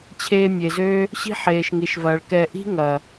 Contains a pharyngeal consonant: yes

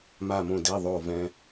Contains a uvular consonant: no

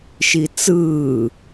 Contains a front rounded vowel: no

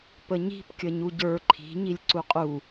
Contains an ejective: yes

